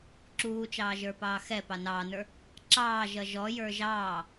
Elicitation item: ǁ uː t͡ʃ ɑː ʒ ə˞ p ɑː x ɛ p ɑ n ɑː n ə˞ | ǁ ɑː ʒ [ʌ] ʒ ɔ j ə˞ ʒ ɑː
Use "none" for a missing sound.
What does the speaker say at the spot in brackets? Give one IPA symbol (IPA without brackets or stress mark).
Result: ʌ